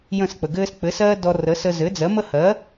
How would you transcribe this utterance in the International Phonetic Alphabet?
j ə̃˥˩ s k͡p ə˩ ɡ ɘː˥ s k͡p ɘ˩˥ s ɜː˥ d ɔ˧ r ə˩˥ s ə˧ z ɘ˩˥ d͡z ɜ˩˥ m ə˥ h ɜ˩˥

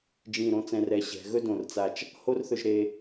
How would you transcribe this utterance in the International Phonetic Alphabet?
d͡ʒ ĩ˧˩ ɾ õ˧ t͡s ɛ̃˧ r ɛ˧˩ ɕ ɛ̤˩˧ ɣ ɵ˥ d õ˧˩ r t͡s a˧˩ t͡ʃ | h o˥ r θ ɵ˧ ʒ ɾ e˧

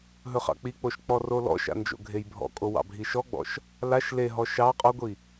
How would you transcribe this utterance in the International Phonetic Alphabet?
ɦ ɵ χ ɑ̰ k͡p i k͡p o ʃ k͡p ɔ r o l ɔ̰ ʃ a̰ n d͡ʒ o̰ ɡʱ e j bʱ ɔ̰ kʼ o w ɑ̰ bʱ i ʃ ɔ ɡ͡b ɔ̰ ʃ | l a ʃ l e ɦ ɔ ʃ ɑ qʼ ɔ ɡʷ i

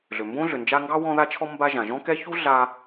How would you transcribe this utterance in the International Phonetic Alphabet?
ɮ ʏ˩ m b õ˥ ɮ ʏ˩ n d͡ʒ a˦ ŋ ɡ ɑ˥ w ɔ̃˦ ð a˦ t͡ʃʰ ɔ˦ m b a˦ ʒ ã˩ ʒ ɔ̃˥ k ɛ˦ ç u˥ ɮ a˦

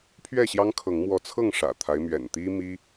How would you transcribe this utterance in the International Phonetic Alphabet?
pʰ ɥ ɛ˥˨ ɕ j ɑ˦ ŋ kʰ ɤ˨˦ ŋ m w ɔ˨˦ t͡sʰ ɤ˥˨ ŋ ʂ ä̰˨˩ t̪ʰ a˦ ɪ̯ m ɥ ɛ̰˨˩ n t̪ i˦ m i˦

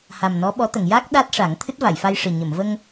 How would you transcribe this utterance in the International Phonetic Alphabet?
h a˨˩ m n ɔ˧˥ ɓ ɔ˧˥ t̪ ə˨˩˨ ŋ j a˦˥ k̚ ɗ a˦˥ t̚ ʂ a˨˩˦ ŋ t̪ʰ ɨ˦˥ t̚ v a˨˩˨ j f a˧ j ʂ ɨ˨˩ ɲ ə˨˩˨ m v ə˧ ŋ

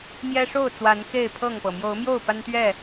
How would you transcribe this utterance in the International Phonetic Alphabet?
m j ɛ˦ ʂ o˥˨ ʊ̯ t͡s w a˨˦ n x e˥˨ ɪ̯ pʰ ɤ˥˨ ŋ p ɤ˩ m j o˨˦ ʊ̯ m j o˥˨ ʊ̯ p a˦ n t̪ ɥ ɛ˥˨

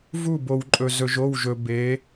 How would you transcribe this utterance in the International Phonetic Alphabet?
v u˦˨ b o˨ w ǃʼ ɵ˨ z ɵ˨ ʒ o˦˨ w ʒ ɵ˨ b e˨˦

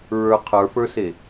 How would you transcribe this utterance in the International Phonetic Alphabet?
ɹ ə˞ qʰ ə˞ f ə˞ s e

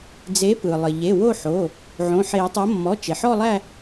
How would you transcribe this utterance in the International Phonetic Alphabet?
d͡z e˨˥ p ɯ˩ lˠ ɘ˩ ʎ e˩˧˩ w o˦˨ ħ o˩˧˩ | ʕ õ˩˧˩ ħ e˨˩˦ tˤ o˨˥ mː ɔ˩˧˩ t͡ʃ e˩ ħ ɔ˦˨ lˠ æ˦˨

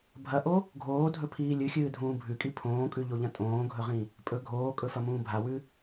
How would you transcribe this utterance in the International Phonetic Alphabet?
bʱ ɐ ʔ o | ɡʱ oː dʱ ɵ pʰ iː lʲ ɨ xʲ ɨː dʱ ũː bʱ ʉ kʼ i pʰ õː kʼ ʉ ʎ o ʎ ɐ̃ tʼ õː ɡʱ ɵ ʁ ĩ | pʼ ɵ ɡʱ oː kʼ ɵ f ɐ m ũː bʱ a w ʉ

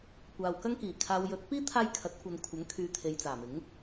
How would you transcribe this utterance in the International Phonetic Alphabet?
kʷ aː˨ w k ɐ˥ ŋ k iː˨˩ kʰ aː˨ w j ɵ˨˥ t̚ p iː˥ t̪ʰ aː˧ j kʰ ɐ˨˥ t̚ kʷ ɐ˨ n kʷʰ ɐ˨˥ ŋ kʰ yː˨˧ t̪ʰ e˨ j t͡s aː˨˩ m ɪ˨˥ ŋ

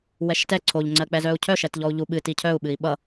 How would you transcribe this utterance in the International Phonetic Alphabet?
w ɛ ʃ t ɛ ǀʰ o ʎ ŋ͡ǀ ɜ k͡p ɛ z œ u̯ cʰ œ ʃ ɛ t ʎ ɔ u̯ ʎ u ɓ ɨ t i cʰ œ u̯ ɓ ɨ i̯ ɓ ʌ

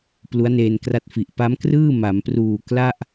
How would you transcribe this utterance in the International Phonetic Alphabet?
p l u˦˥ a̯ n eː˧ n k r a˦˥ t̚ f i˨˩ ʔ p a˦˥ m k r ɯː˥˩ m a˩˦ m p r uː˨˩ k l a˥˩ ʔ

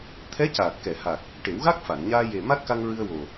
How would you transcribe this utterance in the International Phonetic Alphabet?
t̪ʰ ɛ˧˥ c aː˨˩ t̚ k ɛ˨˩˨ h a˨˩ k̚ | ʈ e˨˩˦ w ɣ a˦˥ k̚ f a˨˩˨ n ɲ aː˧ j e˨˩ m a˦˥ t̚ k a˧ ŋ ɹ ɨ˧ ə̯ w o˨˩

